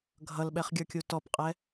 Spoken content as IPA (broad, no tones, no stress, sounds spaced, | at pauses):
ɡʱ ʌ l ɓ ɛ χ ɡʲ ə˞ kʲ u t ɔ p qʼ ɛ